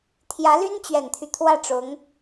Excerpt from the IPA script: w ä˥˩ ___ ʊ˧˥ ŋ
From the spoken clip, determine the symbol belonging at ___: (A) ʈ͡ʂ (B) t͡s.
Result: A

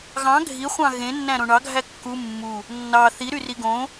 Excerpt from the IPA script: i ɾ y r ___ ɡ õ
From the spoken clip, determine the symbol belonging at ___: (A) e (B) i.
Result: B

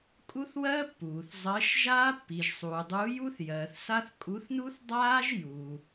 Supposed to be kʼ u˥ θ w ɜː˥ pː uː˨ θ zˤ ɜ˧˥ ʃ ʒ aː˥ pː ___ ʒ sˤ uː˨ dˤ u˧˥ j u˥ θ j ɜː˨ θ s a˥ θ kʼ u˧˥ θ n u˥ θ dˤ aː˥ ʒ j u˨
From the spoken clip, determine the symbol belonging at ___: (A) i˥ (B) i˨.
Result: B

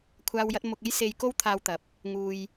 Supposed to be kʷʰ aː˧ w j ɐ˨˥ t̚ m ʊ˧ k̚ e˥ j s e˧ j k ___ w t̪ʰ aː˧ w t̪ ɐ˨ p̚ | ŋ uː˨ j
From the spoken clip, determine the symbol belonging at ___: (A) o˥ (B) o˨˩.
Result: A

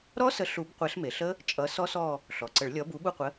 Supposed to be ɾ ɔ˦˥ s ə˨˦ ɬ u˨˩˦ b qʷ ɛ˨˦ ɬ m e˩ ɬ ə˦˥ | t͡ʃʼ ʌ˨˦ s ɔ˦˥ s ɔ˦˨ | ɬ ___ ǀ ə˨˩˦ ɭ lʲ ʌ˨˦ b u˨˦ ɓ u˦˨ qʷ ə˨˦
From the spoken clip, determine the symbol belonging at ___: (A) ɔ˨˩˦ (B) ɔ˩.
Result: B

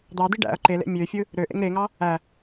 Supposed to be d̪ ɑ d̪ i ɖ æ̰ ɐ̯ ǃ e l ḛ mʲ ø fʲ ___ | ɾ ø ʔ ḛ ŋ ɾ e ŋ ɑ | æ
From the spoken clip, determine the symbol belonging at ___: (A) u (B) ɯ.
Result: B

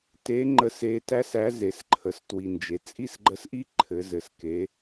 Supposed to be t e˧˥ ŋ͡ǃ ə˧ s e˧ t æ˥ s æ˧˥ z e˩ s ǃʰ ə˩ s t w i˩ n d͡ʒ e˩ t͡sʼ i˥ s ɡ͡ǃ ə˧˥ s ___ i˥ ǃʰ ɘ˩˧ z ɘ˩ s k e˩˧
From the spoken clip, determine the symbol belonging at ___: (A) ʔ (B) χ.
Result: A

